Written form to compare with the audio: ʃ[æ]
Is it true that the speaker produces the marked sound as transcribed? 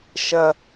no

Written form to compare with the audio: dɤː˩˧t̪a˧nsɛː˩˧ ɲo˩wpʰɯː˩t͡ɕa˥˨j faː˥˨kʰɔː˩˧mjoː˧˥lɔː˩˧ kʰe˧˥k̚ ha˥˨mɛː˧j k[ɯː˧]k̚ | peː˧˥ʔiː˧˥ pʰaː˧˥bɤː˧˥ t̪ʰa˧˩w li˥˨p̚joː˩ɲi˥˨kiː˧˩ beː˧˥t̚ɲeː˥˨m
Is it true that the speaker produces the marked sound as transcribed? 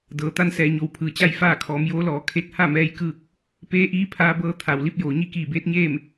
no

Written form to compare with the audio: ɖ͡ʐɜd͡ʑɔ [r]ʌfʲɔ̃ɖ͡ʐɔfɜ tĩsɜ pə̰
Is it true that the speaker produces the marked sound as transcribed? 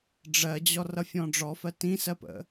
yes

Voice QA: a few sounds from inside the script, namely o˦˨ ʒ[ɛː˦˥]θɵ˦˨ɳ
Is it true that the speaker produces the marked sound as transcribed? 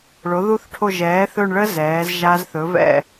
no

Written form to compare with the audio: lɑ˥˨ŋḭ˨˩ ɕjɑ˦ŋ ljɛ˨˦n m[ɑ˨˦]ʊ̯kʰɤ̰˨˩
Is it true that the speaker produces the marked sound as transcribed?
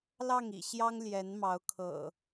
yes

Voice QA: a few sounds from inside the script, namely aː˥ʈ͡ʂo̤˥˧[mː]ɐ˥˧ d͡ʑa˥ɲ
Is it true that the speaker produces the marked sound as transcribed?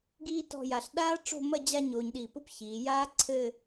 no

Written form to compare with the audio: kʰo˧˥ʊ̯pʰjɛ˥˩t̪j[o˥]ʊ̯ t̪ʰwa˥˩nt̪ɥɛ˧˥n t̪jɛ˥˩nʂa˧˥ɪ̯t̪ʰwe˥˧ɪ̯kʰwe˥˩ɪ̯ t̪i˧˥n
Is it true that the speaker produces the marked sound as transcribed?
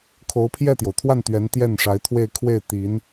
no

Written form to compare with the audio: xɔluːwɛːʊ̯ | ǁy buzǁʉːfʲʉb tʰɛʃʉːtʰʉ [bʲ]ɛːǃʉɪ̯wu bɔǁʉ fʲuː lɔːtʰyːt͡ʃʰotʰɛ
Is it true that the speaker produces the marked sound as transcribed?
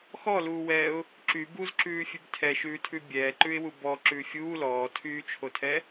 yes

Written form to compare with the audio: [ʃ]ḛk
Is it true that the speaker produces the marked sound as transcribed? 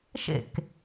yes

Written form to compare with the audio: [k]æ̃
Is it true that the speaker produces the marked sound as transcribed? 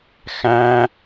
no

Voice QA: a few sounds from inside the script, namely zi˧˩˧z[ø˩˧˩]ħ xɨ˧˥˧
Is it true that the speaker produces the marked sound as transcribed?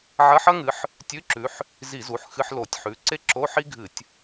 no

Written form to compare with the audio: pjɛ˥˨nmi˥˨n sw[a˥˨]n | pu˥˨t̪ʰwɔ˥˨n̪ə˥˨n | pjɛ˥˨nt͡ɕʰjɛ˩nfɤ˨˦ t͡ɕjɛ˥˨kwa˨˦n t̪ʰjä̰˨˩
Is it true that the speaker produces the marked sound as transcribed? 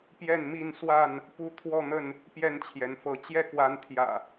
yes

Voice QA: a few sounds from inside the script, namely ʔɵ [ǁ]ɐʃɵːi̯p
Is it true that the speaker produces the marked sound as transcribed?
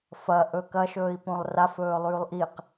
no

